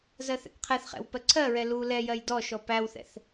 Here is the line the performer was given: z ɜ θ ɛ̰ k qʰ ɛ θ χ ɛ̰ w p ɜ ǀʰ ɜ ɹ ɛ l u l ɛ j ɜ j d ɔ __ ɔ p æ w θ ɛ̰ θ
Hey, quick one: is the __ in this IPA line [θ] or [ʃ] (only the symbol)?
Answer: ʃ